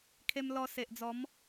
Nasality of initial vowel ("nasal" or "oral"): oral